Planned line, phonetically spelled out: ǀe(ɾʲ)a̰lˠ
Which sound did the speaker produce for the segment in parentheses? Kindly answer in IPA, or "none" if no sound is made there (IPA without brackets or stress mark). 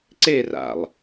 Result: r